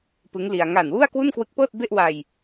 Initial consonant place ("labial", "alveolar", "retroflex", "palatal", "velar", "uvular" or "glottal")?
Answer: labial